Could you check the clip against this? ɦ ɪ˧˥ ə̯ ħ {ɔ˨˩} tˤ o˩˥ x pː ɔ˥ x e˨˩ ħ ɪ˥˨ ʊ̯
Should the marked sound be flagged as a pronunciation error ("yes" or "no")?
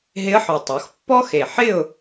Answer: no